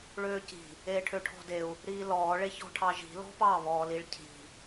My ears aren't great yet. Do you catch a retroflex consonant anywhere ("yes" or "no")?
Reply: yes